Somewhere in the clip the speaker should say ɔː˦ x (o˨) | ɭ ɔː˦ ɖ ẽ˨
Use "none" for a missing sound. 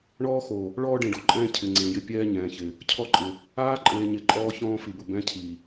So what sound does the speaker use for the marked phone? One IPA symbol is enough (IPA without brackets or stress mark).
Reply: o˨